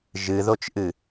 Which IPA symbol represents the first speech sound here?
ʒ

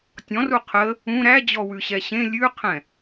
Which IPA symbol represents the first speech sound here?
tʲ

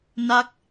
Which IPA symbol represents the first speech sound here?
n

